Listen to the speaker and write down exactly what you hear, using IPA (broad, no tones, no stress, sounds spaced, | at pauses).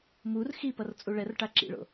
m u r x i p ʌ r t͡sʼ u ɭ ɛ r ʈ a ǁ ḭ ɭ o̰